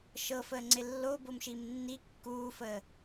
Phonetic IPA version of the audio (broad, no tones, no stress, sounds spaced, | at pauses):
ʃ ɤ f əː ŋ͡ǀ ɪ lː o b o m ʃ i m nː i kː uː f əː